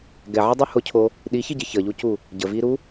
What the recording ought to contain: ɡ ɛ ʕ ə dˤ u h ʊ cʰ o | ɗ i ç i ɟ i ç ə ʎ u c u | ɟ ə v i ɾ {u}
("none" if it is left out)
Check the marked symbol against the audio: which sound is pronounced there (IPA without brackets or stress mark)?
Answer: u